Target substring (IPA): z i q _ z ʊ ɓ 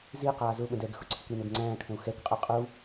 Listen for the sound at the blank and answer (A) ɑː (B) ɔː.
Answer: A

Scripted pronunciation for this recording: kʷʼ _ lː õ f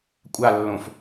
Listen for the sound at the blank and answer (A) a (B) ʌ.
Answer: A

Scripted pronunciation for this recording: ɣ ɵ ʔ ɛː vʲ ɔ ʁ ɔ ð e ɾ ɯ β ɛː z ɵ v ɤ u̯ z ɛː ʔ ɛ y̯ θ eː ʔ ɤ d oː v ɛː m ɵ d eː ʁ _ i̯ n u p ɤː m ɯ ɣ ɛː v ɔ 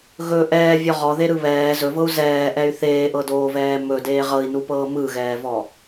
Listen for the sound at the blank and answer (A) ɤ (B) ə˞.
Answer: A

